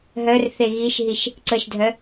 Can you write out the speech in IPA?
ɦœrθe ɣiʃɦiʃ | ǀəʃdʱœ

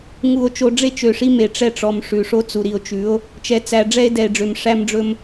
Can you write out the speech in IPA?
ŋu˨o̯ t͡ʃo˨ɖ͡ʐe˦ t͡ʃø˨ʂi˦me˨ ʈ͡ʂɛ˦ʈ͡ʂɔ˨m ʂʉ˨ ʂo˦t͡su˨ ɾi˨o̯t͡ʃʉ˨˦o̯ | t͡ʃɛ˨t͡sæ˨ ɖ͡ʐɛ˦e̯dɛ˨e̯ɖ͡ʐø˨m ʂæ˦mɖ͡ʐɵ˦m

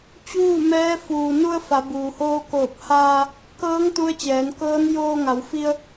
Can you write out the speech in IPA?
t͡ɕuː˥˨mɛː˧˥ fuː˩nu˧ə̯ fa˩˧buː˩hoː˧koː˧˩p̚ haː˧ | kɤː˧˥ŋ t̪u˧˥ə̯t͡ɕɛː˩˧nkɤː˧˥n joː˧ŋa˩˧wfi˧ə̯

